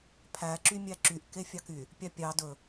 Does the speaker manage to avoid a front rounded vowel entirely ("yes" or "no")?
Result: no